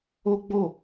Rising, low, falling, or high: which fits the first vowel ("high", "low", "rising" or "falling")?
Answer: high